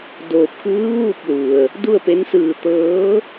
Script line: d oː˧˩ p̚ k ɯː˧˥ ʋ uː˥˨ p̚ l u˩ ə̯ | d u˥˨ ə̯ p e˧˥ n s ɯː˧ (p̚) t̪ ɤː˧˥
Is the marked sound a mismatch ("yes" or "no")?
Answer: yes